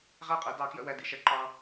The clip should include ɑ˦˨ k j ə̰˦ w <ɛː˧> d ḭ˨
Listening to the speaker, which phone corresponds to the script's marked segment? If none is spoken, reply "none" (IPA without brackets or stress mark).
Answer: ɛ˧